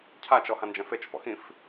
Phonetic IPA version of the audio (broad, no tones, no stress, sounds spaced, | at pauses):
cʰ a t͡ʃ ɔ h ã n d͡ʒ ɛ̃ f e t͡ʃ f ɔ̰ x ĩ f